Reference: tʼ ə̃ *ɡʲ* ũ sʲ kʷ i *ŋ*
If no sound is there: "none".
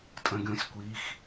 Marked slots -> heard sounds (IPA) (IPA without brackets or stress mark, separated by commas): ɡʲ, x